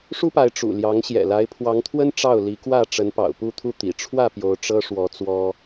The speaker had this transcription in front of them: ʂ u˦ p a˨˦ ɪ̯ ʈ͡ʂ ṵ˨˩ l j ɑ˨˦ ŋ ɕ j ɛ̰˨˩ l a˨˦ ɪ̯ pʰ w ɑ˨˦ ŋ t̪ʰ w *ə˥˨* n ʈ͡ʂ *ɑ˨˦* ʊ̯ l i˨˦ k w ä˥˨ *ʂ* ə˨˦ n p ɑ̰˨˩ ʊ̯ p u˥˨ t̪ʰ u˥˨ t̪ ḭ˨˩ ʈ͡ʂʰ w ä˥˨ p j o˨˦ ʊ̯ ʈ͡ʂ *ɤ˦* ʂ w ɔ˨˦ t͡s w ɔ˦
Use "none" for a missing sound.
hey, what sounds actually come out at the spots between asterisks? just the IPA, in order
ə˦, ɑ˥˨, ʈ͡ʂ, ɤ˦

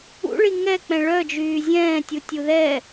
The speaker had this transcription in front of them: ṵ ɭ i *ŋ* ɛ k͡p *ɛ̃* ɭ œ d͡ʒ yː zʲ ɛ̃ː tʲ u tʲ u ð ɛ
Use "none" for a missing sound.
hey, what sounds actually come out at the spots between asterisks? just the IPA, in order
ŋ, ɛ̃

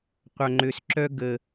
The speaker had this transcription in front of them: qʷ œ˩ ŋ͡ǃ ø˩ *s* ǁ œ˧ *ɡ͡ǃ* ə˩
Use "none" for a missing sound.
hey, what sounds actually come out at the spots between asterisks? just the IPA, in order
s, ɡ

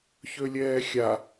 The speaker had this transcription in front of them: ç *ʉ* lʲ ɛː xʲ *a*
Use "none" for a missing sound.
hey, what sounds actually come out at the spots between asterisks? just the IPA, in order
ø, a

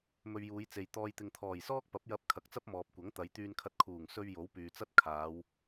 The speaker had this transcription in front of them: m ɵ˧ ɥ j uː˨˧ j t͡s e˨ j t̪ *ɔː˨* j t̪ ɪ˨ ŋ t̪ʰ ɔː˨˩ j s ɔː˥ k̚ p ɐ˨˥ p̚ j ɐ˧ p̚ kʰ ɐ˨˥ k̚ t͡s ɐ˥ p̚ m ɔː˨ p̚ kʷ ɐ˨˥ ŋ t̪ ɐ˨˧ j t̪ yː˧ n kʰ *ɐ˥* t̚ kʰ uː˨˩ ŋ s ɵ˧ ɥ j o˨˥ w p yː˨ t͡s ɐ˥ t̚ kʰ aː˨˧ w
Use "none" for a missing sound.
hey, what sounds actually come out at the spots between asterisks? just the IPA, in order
ɔː˨, ɐ˧

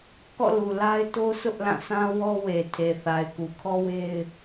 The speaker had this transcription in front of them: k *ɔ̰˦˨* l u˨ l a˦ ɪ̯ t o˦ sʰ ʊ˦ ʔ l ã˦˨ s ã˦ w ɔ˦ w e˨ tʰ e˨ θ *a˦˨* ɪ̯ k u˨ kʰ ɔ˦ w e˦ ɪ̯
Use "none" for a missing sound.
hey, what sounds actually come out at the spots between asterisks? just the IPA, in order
ɔ̰˦˨, a˨

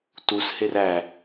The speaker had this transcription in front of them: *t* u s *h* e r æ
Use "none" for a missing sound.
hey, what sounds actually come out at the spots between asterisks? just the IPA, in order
t, h

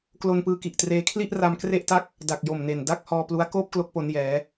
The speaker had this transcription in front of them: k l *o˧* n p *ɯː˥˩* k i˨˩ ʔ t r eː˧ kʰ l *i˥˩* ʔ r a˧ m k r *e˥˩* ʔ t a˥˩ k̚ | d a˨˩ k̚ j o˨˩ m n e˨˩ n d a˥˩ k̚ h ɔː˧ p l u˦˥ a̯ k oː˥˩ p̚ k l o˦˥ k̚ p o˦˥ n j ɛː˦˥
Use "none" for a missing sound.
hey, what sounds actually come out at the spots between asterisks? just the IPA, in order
o˧, ɯː˧, i˥˩, e˥˩

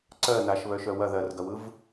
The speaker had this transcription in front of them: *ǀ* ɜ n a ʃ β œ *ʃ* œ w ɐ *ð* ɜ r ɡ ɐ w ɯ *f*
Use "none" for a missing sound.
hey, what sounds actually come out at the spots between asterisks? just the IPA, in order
ǀ, ʃ, ð, v

